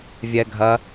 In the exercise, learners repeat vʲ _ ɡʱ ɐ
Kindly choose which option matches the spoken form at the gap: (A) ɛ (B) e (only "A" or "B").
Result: A